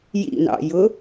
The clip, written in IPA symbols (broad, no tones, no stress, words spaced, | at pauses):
jḭnɑ̰jʊ